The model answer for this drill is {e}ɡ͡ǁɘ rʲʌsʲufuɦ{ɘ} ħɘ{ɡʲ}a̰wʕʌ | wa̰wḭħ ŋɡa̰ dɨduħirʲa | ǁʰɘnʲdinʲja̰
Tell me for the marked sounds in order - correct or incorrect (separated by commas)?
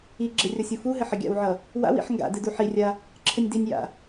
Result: incorrect, correct, correct